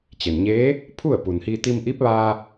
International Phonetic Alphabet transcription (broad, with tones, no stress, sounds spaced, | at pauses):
t͡ɕ e˩ n ɲ eː˧˥ | pʰ u˥˨ ə̯ p u˩ n h i˧ t̪ i˧ m ʔ i˧˥ p̚ ʋ aː˧